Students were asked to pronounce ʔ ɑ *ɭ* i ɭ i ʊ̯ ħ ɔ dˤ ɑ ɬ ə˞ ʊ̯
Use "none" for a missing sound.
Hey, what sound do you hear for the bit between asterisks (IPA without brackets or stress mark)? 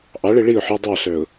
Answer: ɭ